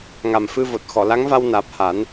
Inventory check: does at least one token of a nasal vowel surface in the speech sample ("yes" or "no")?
no